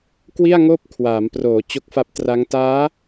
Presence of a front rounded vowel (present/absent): absent